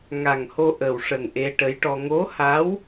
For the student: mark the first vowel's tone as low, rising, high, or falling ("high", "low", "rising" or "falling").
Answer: low